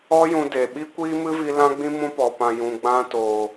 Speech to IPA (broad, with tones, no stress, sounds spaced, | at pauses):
ɔ˦ j ũ˧ d e˨ ɓ i˦ kʷ iː˦ m ɨ˦ v i˧ l ã˦ ɡ͡b ĩ˦ m ũ˧ p ɔ˨ p ã˨ j ũ˨ ɡ͡b ã˧ t oː˨